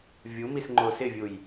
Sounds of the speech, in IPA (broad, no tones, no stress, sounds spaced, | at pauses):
vʲ u m i s ŋ͡ǃ o s ɪ vʲ u j